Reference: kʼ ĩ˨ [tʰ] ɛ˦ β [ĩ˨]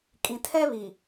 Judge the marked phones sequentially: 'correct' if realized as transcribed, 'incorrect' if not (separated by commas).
correct, incorrect